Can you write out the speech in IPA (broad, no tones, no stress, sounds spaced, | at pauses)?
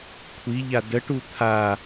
kʷʰ i ʎ a d ə ʈ u t̪ʰ a